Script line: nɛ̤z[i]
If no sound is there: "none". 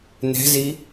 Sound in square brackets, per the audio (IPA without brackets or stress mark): i